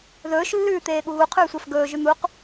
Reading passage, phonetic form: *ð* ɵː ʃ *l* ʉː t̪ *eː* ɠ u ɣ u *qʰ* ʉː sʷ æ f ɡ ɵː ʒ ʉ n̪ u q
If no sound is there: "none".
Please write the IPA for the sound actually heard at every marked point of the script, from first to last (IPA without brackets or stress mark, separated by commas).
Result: ð, lː, eː, qʰ